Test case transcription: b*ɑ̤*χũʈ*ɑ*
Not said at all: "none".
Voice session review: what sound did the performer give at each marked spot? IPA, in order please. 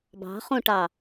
ɑ̤, ɑ

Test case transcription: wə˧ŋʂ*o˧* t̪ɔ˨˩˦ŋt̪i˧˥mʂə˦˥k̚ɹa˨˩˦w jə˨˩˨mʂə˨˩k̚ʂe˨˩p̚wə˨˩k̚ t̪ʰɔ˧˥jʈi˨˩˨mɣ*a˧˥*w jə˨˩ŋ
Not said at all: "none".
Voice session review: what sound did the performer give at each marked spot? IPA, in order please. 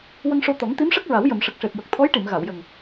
o˧, a˨˩˨

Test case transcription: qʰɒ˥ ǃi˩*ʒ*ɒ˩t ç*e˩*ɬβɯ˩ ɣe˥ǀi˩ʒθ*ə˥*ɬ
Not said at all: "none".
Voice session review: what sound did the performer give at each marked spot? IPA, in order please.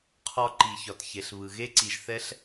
ç, e˩, ɛ˥

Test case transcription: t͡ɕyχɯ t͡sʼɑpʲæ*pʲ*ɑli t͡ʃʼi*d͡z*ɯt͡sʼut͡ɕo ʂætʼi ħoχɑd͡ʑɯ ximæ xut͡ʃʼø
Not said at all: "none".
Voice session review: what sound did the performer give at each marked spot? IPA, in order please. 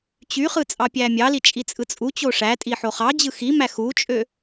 mʲ, t͡sʼ

